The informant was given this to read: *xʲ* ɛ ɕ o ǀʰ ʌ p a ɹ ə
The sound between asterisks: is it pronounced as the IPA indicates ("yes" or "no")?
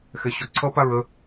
no